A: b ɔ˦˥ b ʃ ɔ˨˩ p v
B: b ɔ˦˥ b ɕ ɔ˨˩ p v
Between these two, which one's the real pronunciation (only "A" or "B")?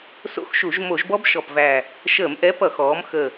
A